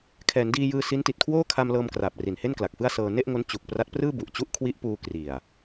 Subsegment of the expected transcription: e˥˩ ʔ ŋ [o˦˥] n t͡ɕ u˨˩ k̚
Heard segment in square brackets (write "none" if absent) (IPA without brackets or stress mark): o˦˥